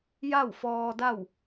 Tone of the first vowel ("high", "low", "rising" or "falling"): falling